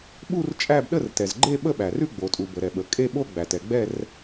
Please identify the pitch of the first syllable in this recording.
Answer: falling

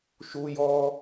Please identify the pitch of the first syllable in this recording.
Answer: high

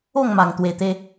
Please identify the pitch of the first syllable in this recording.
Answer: falling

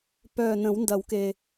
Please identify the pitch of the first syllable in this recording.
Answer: low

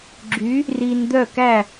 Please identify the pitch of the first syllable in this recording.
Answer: rising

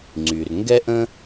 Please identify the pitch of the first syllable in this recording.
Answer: low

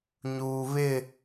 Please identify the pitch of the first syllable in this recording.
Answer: low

